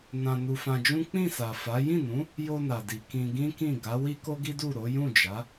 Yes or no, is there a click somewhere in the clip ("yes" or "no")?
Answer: no